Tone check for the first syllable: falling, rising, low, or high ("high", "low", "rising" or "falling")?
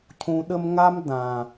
low